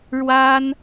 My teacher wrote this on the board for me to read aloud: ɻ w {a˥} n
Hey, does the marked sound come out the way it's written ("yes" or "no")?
yes